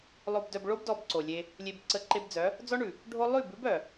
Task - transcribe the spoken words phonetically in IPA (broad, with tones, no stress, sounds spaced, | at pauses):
lˠ o˨ b d œ˨ b ɭ o˧ b d ɔ˧ b ǀ o˨ lʲ e˧ | lʲ e˨ b ǀ ə˨˦ ǃ e˧ b d͡z œ˨˦ | d͡z ɔ˦ ɳ ʉ˨ | ɖʱ o˦ lˠ ʉ˦˨ b ʉ˦ b œ˨